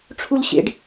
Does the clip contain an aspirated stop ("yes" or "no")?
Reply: yes